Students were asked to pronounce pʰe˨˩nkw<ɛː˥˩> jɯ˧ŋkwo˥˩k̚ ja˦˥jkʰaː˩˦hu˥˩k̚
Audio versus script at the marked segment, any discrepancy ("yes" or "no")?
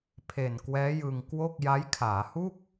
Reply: yes